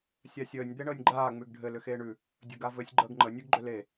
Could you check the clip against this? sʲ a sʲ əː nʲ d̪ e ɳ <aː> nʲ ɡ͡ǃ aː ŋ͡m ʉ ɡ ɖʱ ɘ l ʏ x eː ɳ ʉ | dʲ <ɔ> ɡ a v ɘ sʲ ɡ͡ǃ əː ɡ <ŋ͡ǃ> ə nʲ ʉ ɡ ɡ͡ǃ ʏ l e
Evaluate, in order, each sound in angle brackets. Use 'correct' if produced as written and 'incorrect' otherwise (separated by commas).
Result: incorrect, incorrect, correct